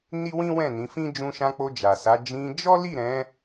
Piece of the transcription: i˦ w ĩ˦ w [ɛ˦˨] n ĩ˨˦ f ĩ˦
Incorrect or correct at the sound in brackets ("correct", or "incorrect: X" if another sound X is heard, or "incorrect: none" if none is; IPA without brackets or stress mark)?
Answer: incorrect: ɛ̃˦˨